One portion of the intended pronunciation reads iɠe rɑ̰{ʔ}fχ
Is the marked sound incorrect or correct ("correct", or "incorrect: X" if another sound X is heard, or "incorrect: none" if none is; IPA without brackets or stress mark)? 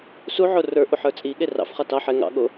incorrect: none